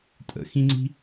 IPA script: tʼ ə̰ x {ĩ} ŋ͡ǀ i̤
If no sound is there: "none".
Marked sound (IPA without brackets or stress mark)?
ĩ